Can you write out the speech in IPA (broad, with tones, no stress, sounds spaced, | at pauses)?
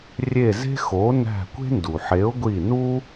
rʲ e˦˨ z e̤˥ x o˨˥ n æ̤˦˨ kʷ e̤˥ n d u˩ ħ e˨˥ ʊ̯ ɡʷ i˦˨ n u˥